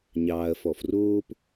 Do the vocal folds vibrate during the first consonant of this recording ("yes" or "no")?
yes